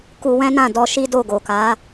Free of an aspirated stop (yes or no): yes